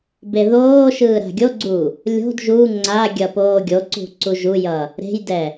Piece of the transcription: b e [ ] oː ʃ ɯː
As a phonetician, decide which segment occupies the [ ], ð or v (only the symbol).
ð